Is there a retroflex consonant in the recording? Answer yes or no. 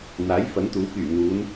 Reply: no